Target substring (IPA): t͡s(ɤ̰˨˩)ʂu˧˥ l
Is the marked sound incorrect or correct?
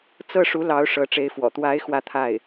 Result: incorrect